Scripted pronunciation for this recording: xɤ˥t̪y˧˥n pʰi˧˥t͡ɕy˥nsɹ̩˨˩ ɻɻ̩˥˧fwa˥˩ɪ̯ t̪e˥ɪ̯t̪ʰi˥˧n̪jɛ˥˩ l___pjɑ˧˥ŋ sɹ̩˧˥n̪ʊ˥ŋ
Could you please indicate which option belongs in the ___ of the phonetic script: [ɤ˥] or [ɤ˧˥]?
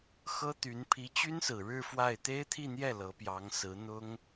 ɤ˧˥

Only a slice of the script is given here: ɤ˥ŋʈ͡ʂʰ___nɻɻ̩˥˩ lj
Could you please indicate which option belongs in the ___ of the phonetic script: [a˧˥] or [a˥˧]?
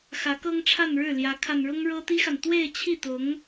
a˥˧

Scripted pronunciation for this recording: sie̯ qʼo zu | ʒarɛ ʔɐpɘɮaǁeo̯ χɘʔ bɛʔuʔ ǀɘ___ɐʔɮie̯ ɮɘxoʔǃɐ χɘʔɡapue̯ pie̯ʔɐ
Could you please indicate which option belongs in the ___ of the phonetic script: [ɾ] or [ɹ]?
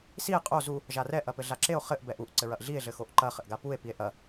ɹ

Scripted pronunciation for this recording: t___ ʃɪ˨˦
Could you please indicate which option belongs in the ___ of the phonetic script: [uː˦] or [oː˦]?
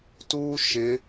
uː˦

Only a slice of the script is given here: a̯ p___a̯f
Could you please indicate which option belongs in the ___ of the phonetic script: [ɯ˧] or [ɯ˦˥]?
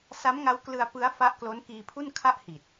ɯ˦˥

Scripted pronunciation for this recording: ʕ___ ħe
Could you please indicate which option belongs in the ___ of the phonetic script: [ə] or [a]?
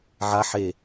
a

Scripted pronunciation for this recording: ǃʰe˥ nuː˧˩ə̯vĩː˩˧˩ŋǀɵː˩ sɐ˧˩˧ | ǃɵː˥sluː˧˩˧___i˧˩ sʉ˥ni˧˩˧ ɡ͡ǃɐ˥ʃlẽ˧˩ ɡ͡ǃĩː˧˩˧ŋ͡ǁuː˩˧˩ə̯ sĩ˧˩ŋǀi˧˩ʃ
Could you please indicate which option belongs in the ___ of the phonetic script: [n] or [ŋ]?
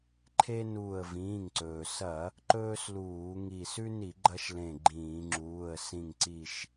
ŋ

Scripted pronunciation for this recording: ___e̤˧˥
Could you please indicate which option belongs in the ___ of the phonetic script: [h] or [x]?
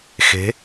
x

